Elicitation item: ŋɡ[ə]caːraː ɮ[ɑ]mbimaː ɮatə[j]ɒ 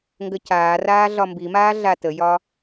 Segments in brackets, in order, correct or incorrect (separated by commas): correct, incorrect, correct